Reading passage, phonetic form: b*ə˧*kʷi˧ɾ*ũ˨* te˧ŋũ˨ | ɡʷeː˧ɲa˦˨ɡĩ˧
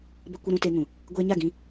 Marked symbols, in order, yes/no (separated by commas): yes, no